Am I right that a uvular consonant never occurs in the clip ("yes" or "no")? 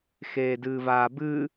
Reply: yes